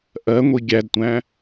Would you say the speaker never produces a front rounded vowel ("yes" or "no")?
yes